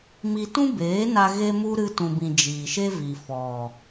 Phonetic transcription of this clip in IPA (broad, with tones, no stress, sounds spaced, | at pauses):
m i˧ t ũ˦ b eː˨˦ n a˧ ɣ e˦ m u˦ ɾ ɨ˧ t ũ˨ b ĩ˨ d͡ʒ iː˨ ʃ e˦ v i˨ f ɔ˨